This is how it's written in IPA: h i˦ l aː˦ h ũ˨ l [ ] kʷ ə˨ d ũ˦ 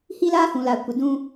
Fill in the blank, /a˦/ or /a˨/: a˨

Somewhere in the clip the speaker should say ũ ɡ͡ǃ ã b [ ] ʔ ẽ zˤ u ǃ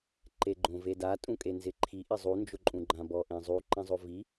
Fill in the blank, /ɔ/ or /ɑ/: ɔ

